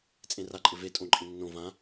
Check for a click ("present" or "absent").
present